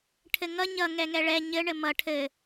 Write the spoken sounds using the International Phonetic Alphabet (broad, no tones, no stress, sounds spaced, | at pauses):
ʈʰ ɘ ŋ ʌ ɲ ʌ ŋ ɛ ŋ ɛ ɭ ɛ ɲ ɘ ɳ ɘ m ʌ ʈʰ ɘ